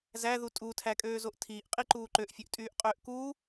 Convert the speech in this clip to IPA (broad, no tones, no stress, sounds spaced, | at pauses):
z æ ð u tʼ u tʰ æ kʼ øː z o ʔ tʰ iː ʔ qʼ i ǃ uː ǃ ø ʔ fʲ ø ʔ tʼ yː ʔ qʼ øː ʔ k uː